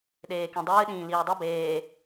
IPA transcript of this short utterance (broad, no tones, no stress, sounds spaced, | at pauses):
ɗ eː k ĩ dˤ ɨː ɗ ĩː l iː dˤ ɨ b eː